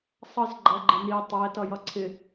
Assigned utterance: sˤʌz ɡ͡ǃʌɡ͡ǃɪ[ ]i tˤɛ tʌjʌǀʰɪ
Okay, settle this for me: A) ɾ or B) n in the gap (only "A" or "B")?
B